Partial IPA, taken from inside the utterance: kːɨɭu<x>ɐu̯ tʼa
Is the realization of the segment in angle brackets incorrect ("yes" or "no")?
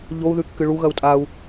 yes